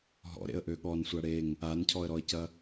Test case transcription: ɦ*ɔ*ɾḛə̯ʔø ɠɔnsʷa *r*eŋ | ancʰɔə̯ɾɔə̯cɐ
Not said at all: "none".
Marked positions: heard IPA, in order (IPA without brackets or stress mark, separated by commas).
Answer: ɔ̰, ɽ